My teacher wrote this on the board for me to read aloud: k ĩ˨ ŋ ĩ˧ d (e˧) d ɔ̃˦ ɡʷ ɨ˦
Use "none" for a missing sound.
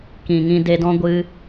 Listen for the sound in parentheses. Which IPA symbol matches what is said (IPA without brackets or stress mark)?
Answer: e˧